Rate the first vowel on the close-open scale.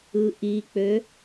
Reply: close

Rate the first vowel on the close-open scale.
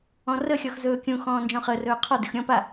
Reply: mid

